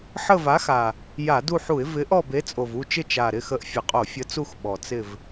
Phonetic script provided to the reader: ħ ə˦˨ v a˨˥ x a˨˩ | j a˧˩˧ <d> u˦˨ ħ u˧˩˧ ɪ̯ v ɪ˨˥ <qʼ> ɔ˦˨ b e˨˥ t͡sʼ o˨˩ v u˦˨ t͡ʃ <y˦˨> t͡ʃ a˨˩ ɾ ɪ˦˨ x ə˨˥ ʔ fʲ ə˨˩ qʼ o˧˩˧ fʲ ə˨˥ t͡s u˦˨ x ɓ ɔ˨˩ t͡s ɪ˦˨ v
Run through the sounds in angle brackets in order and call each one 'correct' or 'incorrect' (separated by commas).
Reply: correct, incorrect, incorrect